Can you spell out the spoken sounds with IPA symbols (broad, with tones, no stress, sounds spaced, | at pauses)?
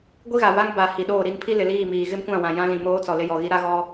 ɡʷ i˦ ɣ a˨ v a˦ ŋ b a˨ h i˨ ɗ oː˦˨ ɾ i˦ n pʰ i˦ l ɪ˨ l iː˦˨ m iː˨ ɣ ɪ˦ m kʷ ã˦˨ w ã˨ j ã˦ l ĩ˨ m oː˦ t͡s ɔ˨ l ɪ˦ j ɔ˨ ɣ i˦ ɾ a˦ ɣ ɔ˦